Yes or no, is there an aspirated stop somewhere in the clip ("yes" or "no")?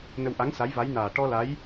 no